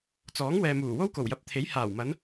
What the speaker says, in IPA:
t͡sɔː˨˥ŋ wɛː˨muː˨˩wo˥w ko˨˩wjɐ˨˥p̚t̪ʰe˨˥j haː˨˩wmɐ˨˧n

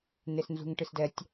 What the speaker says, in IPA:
nesnzṳŋʈɨsdɛtʲ

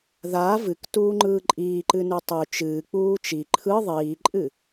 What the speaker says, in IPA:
ðaː vɨktuːŋ͡ǃɯː ǃʼiːǃɨnʉ tˤʉ t͡ʃɨːk͡puː t͡ʃi ǃʰɯ ðˤiːǃʼɨ

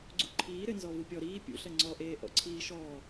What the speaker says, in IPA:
ɡ͡ǀṵǃʰiː ɾɘnzɔ vupʲɔ ɾiː pʲṵɬɐ ŋ͡ǀɔʔeː ʔɔ̰ǀʰiːʃɔː

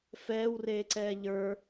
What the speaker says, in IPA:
fɛːwreːǀɛː ʎə˞

